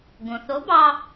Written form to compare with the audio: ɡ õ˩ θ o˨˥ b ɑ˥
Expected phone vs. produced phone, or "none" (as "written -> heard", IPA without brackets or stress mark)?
none